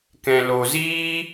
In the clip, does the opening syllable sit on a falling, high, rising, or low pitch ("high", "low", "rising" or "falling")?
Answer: low